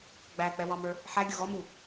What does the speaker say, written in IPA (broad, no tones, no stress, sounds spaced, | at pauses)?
ɡ͡b æ k͡p ɛ w ɑ m ə˞ | ħ æ ɡʲ ʊ ɣ ɔ m u